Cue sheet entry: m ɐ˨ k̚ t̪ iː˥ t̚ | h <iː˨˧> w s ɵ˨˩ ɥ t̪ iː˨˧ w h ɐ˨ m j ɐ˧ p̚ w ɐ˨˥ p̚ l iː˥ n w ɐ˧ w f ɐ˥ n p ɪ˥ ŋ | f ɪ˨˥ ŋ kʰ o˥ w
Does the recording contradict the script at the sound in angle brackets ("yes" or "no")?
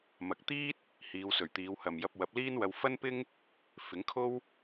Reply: no